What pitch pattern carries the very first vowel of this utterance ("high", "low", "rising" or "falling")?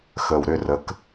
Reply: low